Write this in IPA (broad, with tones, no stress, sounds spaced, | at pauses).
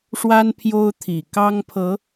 ʂ w a˦ n pʰ j o˦ ʊ̯ t̪ʰ i˨˩ k ɑ˦ ŋ pʰ ɤ˨˦